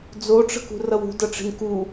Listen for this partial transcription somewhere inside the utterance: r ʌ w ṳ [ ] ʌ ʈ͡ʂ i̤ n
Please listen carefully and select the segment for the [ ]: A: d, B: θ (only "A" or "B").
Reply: A